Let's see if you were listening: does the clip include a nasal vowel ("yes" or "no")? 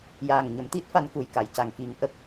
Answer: no